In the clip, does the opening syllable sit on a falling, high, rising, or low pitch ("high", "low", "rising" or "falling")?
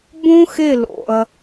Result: high